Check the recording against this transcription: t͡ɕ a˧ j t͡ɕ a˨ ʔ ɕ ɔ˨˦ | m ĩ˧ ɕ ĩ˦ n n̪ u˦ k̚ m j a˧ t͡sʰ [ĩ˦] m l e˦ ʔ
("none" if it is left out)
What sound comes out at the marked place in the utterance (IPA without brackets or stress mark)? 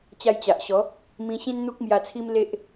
i˦